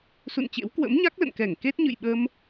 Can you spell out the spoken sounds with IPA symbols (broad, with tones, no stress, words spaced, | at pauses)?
sṵ˧˨nt͡ɕḛ˧˥w kwə̰˧˥mɲa˦˥k̚lə̰˧˨nkɛ˧˩ŋ ke˦˥t̚ɲɨ̰˧˨jɓə˧m